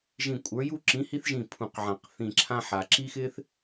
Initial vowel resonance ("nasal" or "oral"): nasal